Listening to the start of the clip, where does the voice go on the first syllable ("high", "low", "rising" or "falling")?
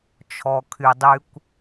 low